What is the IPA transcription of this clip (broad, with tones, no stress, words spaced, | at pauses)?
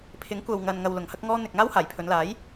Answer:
pʰɪ˨˥ŋ kʷɐ˨wŋɐ˨nŋɐ˨w lʊ˨˧ŋhɐ˥k̚ŋɔː˥ n̪ɪ˧k̚ ŋaː˥whaː˨˩jpʰɵ˨˧nlaː˨˥j